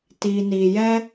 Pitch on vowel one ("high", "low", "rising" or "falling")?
low